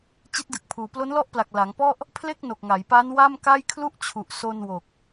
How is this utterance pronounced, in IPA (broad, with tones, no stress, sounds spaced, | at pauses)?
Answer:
t͡ɕ i˦˥ t̚ d ɯ˨˩ k̚ pʰ uː˩˦ p l o˦˥ n l ɔ˥˩ ʔ p l a˨˩ k̚ l a˩˦ ŋ p ɔ˥˩ ʔ | pʰ l e˥˩ k̚ n o˨˩ k̚ ŋ a˩˦ j p aː˦˥ n w a˥˩ m k a˥˩ j kʰ l u˥˩ ʔ t͡ɕʰ u˨˩ ʔ s o˧ n w o˨˩ k̚